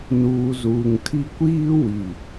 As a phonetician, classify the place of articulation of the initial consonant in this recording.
alveolar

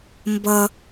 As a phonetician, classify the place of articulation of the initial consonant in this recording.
labial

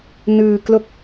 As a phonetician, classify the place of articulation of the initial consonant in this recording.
alveolar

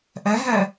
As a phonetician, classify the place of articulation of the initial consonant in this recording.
glottal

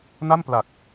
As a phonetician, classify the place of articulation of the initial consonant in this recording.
alveolar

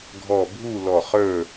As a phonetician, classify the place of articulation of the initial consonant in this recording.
velar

